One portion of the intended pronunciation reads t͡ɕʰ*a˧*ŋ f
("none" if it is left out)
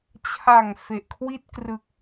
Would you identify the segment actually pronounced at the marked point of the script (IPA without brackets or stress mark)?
a˨˩